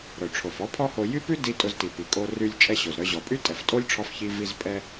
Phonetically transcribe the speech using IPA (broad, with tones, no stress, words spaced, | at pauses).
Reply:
ɾœ˩ ʈ͡ʂʰo˩fɔ˥pʰɔ˥ho˧ jy˥pʉ˥di˧ tʼʊ˧zti˩pi˩kʼo˧ ry˧lʲt͡ʃʼɛ˧ ɕo˩zɾœ˧ʑɔ˩ pʼy˥tʼɛ˩ftʼo˥lʲʈ͡ʂʰɔ˧f çi˧vi˧z pʼɛ˧